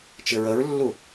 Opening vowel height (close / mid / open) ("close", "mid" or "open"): close